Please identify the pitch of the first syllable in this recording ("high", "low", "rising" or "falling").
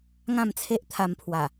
falling